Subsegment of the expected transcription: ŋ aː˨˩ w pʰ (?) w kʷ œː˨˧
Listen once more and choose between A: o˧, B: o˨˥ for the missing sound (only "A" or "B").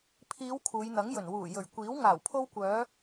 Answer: A